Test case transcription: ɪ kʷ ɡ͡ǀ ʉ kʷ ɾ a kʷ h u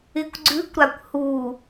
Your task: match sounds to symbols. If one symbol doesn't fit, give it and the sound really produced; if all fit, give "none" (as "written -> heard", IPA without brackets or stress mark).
none